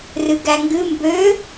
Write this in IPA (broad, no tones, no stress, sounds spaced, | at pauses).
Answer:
r ɨ ɡ æ ŋ ɡ ɨ m b ø